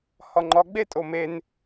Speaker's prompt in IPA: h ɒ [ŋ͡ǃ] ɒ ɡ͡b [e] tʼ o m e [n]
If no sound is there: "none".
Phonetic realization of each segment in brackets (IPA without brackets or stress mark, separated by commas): ŋ͡ǃ, e, n